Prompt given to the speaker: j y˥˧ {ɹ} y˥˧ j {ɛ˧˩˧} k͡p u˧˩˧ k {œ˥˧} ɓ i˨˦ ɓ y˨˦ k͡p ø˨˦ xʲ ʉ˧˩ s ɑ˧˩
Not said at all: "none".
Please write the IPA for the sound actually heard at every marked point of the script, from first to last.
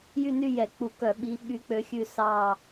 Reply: n, ɛ˧˩˧, œ˧˩˧

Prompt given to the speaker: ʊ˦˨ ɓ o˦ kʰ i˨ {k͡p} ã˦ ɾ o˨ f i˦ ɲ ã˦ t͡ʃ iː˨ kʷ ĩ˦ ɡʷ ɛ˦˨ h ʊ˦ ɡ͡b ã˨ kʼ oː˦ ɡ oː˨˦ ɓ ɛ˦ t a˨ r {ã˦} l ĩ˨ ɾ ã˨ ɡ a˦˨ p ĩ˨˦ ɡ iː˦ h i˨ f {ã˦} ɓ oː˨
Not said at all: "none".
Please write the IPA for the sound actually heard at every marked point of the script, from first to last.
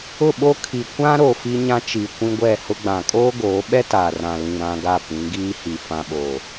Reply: kʷ, ã˨, ã˨

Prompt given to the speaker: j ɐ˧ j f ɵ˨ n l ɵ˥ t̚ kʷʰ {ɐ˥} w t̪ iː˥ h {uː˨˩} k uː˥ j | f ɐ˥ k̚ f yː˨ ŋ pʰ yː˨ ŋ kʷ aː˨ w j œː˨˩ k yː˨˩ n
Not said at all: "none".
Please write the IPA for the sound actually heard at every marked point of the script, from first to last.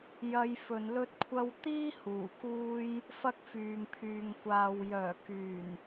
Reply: ɐ˥, uː˨˩

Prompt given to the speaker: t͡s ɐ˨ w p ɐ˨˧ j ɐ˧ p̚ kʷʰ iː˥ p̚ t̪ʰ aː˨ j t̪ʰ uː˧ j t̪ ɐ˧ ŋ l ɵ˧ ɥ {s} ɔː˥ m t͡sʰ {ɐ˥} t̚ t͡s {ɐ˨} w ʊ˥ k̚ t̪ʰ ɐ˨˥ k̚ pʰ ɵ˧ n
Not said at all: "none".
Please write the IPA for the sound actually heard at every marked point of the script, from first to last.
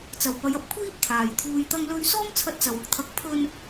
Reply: s, ɐ˧, ɐ˨

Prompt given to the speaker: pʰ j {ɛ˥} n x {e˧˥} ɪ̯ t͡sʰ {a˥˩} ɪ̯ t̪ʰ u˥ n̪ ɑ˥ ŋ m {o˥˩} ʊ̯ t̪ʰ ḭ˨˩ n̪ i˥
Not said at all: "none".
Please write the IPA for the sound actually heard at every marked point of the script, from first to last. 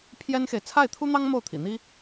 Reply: ɛ˥, e˨, a˥˩, o˥˩

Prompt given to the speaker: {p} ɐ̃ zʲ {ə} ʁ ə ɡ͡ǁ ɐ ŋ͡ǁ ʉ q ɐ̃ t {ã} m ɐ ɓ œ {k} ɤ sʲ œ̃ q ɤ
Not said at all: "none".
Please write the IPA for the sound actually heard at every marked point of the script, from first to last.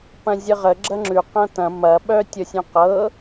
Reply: p, ə, ɐ̃, tʲ

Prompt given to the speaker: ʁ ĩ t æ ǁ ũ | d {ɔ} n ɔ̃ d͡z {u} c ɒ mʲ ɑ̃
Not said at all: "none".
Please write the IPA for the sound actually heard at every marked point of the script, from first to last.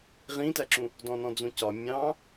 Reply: ɔ̃, ũ

